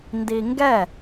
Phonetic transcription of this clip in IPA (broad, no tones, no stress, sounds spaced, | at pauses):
n d i ŋ ɡ ɛ